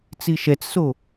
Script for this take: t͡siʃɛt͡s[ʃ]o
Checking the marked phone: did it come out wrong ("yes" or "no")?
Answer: yes